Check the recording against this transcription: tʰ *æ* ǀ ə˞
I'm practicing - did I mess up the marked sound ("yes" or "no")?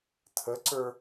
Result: yes